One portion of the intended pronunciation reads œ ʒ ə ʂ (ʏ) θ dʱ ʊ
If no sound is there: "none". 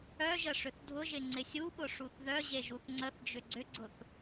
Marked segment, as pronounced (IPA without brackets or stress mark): ʏ